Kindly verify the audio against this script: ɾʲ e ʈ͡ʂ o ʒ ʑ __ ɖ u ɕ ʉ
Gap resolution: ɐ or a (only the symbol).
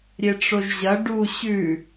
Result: ɐ